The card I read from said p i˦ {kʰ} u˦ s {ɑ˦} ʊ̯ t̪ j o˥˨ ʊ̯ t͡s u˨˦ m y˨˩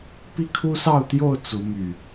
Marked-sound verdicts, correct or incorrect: correct, incorrect

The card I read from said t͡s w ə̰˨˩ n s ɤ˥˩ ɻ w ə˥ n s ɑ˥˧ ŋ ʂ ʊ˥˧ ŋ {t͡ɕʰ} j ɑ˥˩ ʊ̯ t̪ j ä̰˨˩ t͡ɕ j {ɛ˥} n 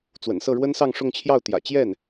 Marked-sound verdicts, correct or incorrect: correct, incorrect

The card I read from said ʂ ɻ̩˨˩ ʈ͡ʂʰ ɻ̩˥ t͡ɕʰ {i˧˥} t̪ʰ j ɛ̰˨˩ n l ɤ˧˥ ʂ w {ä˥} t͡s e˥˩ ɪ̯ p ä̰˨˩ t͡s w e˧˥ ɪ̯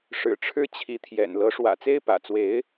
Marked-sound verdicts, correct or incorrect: correct, incorrect

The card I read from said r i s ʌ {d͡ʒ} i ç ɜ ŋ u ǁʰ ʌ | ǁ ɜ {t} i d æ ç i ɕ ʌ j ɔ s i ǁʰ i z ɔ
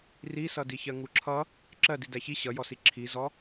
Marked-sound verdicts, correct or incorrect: incorrect, incorrect

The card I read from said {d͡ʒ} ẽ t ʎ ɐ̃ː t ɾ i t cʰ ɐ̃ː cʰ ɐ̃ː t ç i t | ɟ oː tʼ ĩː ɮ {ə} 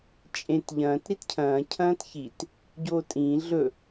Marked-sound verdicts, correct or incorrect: incorrect, incorrect

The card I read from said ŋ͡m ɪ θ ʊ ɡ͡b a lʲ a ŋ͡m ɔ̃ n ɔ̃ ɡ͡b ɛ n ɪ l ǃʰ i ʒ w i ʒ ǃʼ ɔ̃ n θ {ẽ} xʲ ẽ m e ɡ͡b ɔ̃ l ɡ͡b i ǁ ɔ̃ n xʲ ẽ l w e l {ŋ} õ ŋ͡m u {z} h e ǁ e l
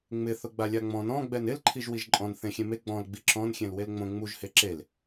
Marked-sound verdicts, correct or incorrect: correct, incorrect, incorrect

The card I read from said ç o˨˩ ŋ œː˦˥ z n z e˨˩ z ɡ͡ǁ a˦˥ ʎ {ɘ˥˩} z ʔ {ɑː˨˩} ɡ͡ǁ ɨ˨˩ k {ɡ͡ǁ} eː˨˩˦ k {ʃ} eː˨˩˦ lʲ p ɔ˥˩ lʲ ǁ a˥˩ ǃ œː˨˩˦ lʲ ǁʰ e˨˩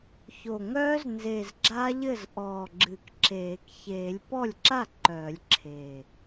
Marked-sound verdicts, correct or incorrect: correct, incorrect, incorrect, incorrect

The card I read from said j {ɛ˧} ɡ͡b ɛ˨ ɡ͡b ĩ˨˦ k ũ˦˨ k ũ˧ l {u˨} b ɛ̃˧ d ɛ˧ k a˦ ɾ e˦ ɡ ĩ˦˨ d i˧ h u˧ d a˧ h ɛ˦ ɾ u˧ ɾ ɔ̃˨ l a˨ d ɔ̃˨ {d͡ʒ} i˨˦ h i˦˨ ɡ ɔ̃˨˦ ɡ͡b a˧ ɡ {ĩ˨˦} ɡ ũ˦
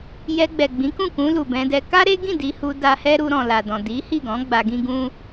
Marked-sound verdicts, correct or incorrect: correct, correct, incorrect, incorrect

